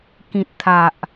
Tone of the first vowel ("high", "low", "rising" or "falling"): low